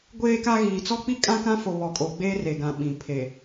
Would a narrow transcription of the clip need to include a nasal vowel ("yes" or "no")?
yes